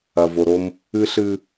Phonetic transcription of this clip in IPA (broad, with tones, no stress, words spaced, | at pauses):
ɐ˨vo˨ɾo˦m | ɨ˦ɬɨ˦